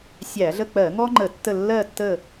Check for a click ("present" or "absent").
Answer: present